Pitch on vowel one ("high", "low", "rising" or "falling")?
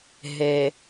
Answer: low